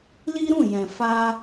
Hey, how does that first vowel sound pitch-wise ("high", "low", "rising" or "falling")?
high